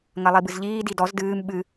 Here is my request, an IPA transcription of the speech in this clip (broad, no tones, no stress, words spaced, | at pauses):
ŋɐlˠibɨzʎiː didɔz dɨːm ɓɨ